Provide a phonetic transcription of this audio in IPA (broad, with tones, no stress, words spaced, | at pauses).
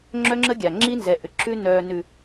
ŋ͡ǁœ˦ŋ͡ǁə˦ɡʲa˨ ŋ͡ǁi˦nzɛ˨ʔʏ˨ ǁʉ˦ nœː˨nʉ˨